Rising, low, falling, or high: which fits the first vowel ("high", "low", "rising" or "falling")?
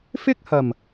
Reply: high